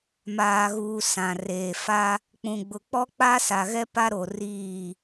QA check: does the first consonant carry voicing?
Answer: yes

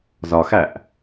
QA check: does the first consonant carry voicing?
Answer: yes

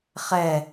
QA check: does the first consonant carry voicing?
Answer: no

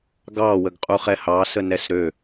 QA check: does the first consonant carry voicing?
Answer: yes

